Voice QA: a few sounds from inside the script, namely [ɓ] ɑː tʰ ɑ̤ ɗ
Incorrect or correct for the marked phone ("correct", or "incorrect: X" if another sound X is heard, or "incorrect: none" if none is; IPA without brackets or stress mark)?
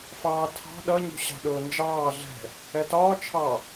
incorrect: f